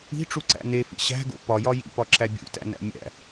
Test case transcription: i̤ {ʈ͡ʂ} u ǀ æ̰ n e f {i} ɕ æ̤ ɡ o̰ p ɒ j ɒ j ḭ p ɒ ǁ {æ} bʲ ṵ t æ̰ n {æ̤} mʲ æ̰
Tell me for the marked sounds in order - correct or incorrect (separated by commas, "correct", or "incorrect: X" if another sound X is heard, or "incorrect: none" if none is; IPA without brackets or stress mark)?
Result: correct, incorrect: ḭ, correct, incorrect: æ̰